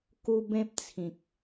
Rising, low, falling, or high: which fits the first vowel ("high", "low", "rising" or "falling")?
high